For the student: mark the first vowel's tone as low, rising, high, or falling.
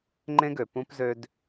high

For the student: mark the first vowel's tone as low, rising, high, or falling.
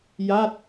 falling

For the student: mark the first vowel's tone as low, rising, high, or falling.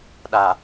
low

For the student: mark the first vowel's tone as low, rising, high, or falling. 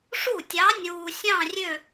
falling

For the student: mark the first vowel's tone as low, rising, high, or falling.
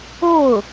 falling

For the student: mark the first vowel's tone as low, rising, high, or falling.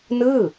falling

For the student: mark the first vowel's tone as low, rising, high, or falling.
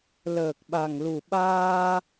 low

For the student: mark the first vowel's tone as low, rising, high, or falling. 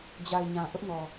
low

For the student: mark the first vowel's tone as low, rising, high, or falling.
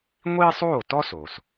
high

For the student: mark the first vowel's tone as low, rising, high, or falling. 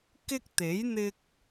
high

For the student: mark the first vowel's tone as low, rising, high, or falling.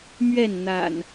falling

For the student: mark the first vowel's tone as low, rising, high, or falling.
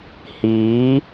rising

